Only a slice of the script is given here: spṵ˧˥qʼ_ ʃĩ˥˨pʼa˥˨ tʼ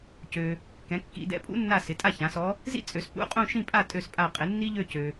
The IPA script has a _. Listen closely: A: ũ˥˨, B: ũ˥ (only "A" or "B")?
A